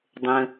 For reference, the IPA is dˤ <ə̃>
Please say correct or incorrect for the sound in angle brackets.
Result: correct